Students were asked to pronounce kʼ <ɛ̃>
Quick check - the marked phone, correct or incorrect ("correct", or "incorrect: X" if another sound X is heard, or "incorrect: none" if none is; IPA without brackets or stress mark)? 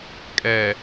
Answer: incorrect: ɛ